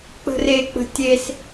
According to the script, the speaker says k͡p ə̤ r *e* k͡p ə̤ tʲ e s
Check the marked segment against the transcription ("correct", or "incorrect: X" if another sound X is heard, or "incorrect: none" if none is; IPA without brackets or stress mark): correct